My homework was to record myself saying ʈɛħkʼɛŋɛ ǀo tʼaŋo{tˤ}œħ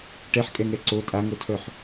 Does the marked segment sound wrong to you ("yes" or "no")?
yes